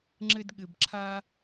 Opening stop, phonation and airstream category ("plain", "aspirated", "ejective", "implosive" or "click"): click